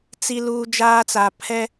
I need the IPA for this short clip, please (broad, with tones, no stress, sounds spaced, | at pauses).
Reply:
t͡s i˦ l uː˦ d͡ʒ aː˦ t͡s a˨ pʰ ɛ˦